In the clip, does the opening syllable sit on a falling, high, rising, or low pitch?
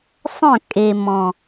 falling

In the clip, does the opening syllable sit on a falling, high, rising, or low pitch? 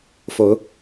rising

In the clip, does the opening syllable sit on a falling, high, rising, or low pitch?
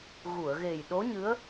low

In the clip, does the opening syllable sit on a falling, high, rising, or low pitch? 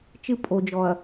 high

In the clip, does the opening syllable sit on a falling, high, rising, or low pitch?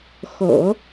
low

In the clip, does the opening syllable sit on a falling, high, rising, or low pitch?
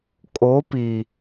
rising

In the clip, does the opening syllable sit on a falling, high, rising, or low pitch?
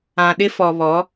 low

